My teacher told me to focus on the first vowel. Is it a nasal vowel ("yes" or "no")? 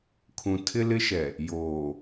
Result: yes